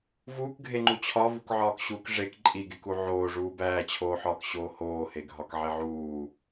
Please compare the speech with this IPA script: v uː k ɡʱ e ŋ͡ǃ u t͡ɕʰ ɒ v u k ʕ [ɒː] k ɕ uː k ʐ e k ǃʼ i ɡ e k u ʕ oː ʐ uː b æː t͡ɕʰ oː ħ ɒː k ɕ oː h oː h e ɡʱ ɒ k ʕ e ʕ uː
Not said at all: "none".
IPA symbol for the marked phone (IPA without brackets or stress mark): ɒː